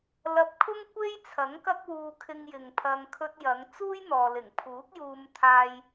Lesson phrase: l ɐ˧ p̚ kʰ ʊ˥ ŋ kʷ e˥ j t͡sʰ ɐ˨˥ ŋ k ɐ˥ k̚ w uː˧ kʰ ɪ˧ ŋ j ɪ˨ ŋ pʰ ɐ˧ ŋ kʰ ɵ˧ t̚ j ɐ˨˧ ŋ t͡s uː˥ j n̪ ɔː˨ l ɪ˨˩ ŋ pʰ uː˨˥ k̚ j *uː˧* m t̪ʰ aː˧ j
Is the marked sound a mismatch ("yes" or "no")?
no